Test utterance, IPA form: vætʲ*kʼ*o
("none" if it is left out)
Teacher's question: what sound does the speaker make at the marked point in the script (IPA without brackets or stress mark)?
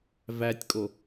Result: kʼ